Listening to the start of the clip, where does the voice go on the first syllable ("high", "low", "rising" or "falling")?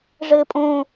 high